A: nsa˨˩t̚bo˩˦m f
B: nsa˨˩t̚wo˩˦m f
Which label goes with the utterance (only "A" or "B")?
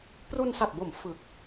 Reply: A